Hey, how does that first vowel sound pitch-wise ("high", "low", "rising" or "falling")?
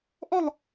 falling